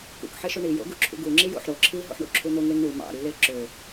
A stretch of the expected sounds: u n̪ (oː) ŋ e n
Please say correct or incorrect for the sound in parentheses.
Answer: incorrect